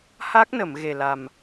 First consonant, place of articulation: glottal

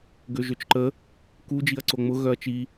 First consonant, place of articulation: velar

